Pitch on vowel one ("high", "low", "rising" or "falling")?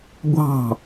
falling